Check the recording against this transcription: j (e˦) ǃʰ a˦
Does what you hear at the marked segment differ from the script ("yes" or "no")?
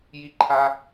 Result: yes